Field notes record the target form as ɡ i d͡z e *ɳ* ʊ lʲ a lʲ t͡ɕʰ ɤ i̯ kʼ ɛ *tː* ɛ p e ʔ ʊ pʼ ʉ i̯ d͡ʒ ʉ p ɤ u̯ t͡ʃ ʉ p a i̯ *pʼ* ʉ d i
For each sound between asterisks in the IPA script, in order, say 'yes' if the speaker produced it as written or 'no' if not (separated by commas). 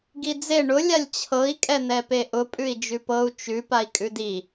yes, no, no